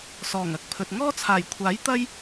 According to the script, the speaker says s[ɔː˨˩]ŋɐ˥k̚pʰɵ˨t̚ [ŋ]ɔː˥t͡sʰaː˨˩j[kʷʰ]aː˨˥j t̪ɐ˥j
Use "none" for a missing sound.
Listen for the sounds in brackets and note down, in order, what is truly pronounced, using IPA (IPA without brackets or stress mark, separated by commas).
ɔː˨˩, ŋ, kʷʰ